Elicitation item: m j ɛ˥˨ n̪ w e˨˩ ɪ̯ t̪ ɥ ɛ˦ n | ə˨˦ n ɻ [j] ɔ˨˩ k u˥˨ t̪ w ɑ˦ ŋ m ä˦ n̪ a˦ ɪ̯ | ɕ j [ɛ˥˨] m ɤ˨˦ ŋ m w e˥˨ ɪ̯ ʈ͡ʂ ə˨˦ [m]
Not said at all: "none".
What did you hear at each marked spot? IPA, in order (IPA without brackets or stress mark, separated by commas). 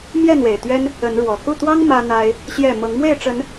w, ɛ˥˨, n